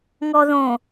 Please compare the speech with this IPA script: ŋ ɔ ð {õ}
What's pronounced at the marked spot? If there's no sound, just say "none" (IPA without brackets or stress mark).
õ